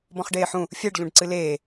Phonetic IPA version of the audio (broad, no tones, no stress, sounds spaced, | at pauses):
b ɔ̃ χ ɖ eː ħ ũ | fʲ ɛ ɖ ʎ ũ ɖ ǀ ɨ l eː